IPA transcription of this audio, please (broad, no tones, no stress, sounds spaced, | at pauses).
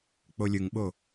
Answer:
k͡p o lʲ ɯ ŋ ɓ o